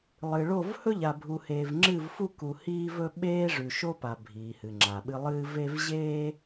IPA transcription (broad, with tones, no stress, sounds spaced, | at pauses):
lˠ ɨ˨ ɭ o˦˨ v h ɵ˦ ʎ a˨ bʱ u˨ h eː˨ v ŋ͡ǁ ɨ˦˨ v f u˦ k u˨ h iː˦ v ɵ˦ ɓ eː˦ ʐ ʉ˨ ʃ o˦ p a˨ bʱ iː˨ h ɨ˨ ŋ͡ǁ a˨ ɓ ɨ˦ lˠ ɨː˦ v e˦ v ʑ eː˦